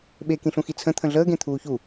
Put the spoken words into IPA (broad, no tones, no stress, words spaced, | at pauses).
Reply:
ɓekĩɬũxi t͡sʰə̃ t̪ʰə̃ɮəːɡẽ t̪ʰuːçu